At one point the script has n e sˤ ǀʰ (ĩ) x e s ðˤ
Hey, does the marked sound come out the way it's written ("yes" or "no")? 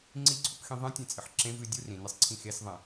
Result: yes